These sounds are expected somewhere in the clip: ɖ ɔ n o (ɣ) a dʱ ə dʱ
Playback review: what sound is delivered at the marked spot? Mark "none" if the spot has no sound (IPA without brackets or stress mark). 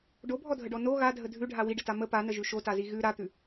ɣ